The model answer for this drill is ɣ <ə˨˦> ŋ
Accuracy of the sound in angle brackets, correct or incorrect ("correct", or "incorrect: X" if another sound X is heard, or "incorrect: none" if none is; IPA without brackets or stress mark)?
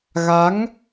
incorrect: a˨˦